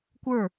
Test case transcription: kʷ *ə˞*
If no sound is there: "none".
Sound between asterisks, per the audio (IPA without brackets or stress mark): ə˞